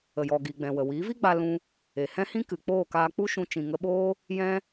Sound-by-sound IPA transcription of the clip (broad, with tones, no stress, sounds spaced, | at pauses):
ə˨ j ɔ˨ ɡ i˨ ɡ͡b ɛ̃˨ w ə˨ w i˨˦ v i˦ ɡ͡b a˧ l ũ˧ | e˨ h ɛ̃˦ h ĩ˦ k ɨ˨ k͡p oː˦˨ k aː˧ k͡p u˦ ʃ ũ˧ t͡ʃ ĩ˨ ŋ ə˧ ɓ oː˦ | j ɛ̃˦